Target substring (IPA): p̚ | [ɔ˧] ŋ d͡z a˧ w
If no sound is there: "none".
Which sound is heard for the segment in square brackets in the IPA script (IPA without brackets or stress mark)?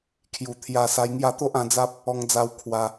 ɔ˧